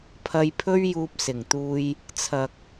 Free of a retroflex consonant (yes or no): yes